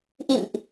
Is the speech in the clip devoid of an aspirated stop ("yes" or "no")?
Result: yes